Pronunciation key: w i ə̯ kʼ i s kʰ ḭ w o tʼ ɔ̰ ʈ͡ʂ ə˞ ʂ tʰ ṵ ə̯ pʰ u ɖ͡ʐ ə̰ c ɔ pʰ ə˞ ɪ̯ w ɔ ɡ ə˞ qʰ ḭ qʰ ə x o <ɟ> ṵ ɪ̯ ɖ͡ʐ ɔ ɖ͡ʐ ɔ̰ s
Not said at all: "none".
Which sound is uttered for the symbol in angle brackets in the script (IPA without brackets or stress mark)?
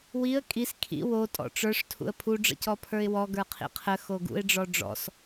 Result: ɡ